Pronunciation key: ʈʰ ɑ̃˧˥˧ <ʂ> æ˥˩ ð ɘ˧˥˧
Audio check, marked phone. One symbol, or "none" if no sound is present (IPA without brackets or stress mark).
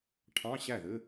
ɕ